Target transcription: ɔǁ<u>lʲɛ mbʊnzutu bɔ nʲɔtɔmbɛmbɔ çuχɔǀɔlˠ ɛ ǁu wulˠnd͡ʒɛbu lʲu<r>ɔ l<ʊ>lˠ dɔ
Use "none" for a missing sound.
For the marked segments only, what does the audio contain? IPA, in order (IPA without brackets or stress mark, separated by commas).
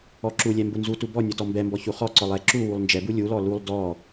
u, l, u